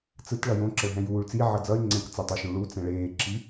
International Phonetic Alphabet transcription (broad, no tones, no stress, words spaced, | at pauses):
t͡sɯt ɭʌjõ ǁʌɭɦɛ̃juːɭ t͡si ʕʌd͡zʌy̯ ŋ͡ǀɛ̃k t͡sʌtˤoʃũ ɭu t͡sɛ̃ɭeːǁi